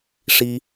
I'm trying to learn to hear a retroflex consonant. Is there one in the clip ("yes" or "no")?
yes